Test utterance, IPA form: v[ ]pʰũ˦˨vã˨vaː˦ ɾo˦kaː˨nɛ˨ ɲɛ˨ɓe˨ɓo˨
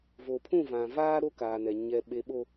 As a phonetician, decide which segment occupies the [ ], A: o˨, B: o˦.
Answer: A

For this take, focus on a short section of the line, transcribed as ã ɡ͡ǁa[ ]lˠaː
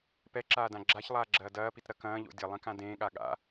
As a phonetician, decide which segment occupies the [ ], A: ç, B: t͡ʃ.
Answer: A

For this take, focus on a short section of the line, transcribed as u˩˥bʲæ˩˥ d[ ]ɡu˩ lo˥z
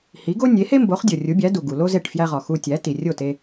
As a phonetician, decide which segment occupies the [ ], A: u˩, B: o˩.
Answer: A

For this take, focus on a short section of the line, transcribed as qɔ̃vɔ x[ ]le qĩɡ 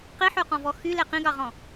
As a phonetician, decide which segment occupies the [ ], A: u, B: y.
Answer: B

